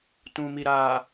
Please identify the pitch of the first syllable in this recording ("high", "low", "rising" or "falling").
low